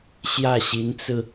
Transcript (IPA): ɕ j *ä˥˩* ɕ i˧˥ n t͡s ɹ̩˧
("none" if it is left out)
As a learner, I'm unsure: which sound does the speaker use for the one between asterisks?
ä˥˩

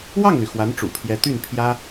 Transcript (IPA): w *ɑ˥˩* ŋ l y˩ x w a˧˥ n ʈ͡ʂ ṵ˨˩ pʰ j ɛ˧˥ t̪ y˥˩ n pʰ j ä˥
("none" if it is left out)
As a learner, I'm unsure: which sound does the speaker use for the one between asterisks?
ɑ˥˩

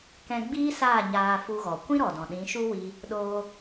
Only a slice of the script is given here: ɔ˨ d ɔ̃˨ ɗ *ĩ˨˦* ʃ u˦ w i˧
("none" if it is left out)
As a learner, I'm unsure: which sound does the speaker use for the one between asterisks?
ĩ˨˦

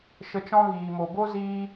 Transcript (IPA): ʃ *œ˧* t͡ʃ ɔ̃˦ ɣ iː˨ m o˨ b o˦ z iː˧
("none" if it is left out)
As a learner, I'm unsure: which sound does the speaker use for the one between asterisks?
ə˧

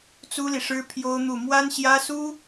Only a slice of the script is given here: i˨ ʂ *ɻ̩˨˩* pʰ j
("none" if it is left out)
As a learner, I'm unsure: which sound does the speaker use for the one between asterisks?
ɻ̩˥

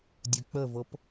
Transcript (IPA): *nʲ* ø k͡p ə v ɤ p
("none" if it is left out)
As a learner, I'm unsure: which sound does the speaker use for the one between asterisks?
dʲ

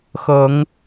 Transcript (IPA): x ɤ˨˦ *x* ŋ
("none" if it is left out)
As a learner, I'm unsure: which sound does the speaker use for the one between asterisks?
none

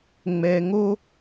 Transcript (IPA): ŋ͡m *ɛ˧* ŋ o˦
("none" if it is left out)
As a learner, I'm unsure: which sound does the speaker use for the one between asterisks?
ɛ˧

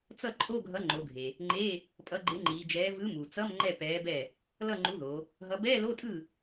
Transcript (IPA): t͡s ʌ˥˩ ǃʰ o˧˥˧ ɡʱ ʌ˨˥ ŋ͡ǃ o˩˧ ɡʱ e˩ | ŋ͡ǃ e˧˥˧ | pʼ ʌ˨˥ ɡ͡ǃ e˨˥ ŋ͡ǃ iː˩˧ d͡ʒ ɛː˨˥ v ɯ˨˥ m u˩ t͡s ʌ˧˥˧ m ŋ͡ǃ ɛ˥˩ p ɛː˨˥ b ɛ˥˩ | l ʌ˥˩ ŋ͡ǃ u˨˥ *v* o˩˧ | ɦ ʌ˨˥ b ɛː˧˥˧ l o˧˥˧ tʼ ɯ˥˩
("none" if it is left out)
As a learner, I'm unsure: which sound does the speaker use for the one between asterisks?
ð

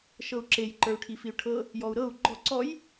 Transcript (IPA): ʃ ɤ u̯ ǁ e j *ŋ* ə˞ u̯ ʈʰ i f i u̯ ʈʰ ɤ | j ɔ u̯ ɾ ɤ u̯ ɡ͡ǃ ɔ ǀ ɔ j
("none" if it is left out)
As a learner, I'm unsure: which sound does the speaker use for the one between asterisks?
ǃ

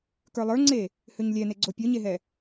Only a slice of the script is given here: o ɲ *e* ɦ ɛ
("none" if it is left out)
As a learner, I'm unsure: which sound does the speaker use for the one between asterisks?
e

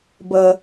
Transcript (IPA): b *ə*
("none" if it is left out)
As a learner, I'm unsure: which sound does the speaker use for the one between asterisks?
ə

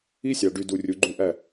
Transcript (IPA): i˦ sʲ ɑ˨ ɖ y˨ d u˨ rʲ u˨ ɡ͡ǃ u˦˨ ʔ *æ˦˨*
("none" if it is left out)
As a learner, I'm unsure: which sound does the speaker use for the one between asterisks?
æ˦˨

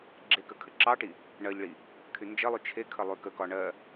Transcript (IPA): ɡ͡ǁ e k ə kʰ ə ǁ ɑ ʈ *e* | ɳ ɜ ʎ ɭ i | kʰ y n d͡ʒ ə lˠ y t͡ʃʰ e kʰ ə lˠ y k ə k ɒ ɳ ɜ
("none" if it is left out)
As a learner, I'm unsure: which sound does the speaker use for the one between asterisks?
i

